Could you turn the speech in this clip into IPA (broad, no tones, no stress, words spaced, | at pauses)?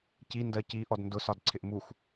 ci ndɜci ʔɔdndʊ sɒdǀʰɪʔmux